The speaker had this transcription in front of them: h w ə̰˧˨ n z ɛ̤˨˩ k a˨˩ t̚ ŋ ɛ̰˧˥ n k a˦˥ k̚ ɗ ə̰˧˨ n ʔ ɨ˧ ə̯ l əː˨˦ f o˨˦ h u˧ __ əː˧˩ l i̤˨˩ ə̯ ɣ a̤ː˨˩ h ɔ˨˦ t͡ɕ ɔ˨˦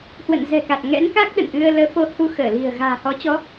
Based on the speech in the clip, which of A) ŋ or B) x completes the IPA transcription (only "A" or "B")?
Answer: B